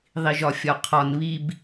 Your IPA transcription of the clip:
ðˤ i ʒ ɒ fʲ ɒ qʰ ɒ n β i b

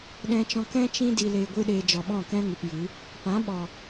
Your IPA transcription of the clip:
ɗ ɛ̃˧ t͡ʃ ɔ̃˧ k ɛ̃˦ t͡ʃ ĩ˧ d i˨ l e˨ ɡʷ ɨ˧ ɗ e˨ d͡ʒ ɔ˨ ɓ ɔ̃˦˨ k ɛ̃˦ ŋ ɨ˨ p j ɨ˨˦ | p ã˨˦ ɓ ɔ˨

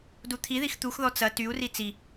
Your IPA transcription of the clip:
d u t̪ʰ i ð i x t̪ u x ð ɔ t͡s ɐ t y u̯ r i t͡s i

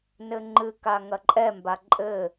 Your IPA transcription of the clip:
n ɘ ŋ͡ǃ ɨ k a ŋ ɐ ǃʼ ɛ m b a ǃʼ ɘ

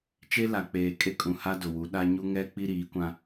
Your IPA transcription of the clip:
t͡ʃ e˦ l a˨ k͡p eː˨ kʼ e˦ kʼ ũ˨ h a˦ d ʊ˨ w u˨˦ ɗ a˦ ɲ u˦ ŋ ɛ˦ k͡p i˦ ɾ iː˨˦ kʷ ã˦

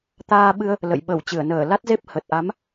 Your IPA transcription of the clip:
t̪ aː˧ ɓ ɨ˧ ə̯ | l ə̰˧˨ j ɓ ə˧˩ w t͡ɕ ɨ˧˩ ə̯ n əː˧˩ l a˦˥ t̚ z e˦˥ p̚ h ə˨˩ t̚ ʔ a˨˦ m

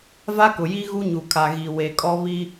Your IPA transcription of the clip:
v a˦ k ʊ˨ j i˦ ɣ u˦ ɲ u˨ kʰ a˨ ɣ i˨ w e˨ kʼ ɔ˦ β i˦

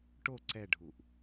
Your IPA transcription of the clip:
ʈ o ǀ ɛ ɖʱ u ʔ

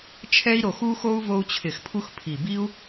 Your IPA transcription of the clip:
t͡ʃʰ ɛ˦ i̯ ɾ o˨˩ x u˦ x o˦ u̯ v o˦ u̯ t͡ɕʰ ɪ˧˩˧ x pʰ u˦ x pʰ i˨˩ b i˦ u̯

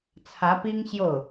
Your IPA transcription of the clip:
t͡sʰ ä˧˥ p i˥ ŋ ɕ j o˥˩ ʊ̯

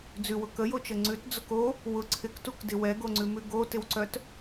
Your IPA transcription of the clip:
d͡z ʉ w ʊ k ə j o t͡ʃ ə ŋ͡ǀ ʉ t d͡z ʊ k o | w ʊ ǀʰ ɪ k t u k d ɪ w ɛ ɡ o ŋ͡ǀ ʉ m ʉ ɡ o t ɪ w ǀ œ t

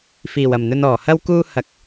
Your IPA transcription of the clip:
f iː˨˩ w ɐ˨˩ m n̪ ɵ˧ n ɔː˨˩ h ɐ˥ w k uː˥ h ɐ˧ k̚

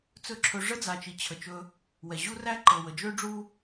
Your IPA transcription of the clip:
t͡s ɵ˦ ǁʰ ɵ˧ ʐ ə˦ d͡z a˨ t͡ʃ i˨ t͡ɕʰ ə˨ t͡ʃ ɵ˧ | w ɛ˨ ʑ u˦ r æ˦ ǃ ɤ˨ w ə˨ d͡ʒ ø˦ ɖ͡ʐ u˦

